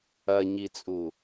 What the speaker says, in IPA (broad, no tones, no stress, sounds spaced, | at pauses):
ɐ ɲ i t͡sʼ u